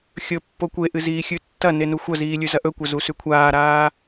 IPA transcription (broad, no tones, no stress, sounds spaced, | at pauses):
xʲ ɵ pː o kʷ e ʔ ɨ z iː xʲ ʉ tː ɐ n e n u xʷ ɐ z iː lʲ ʉ z ɐ ʔ ɵ kʷ ɐ z u s ʉ kʷʰ aː ɾ aː